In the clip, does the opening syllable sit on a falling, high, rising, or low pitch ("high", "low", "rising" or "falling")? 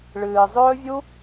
low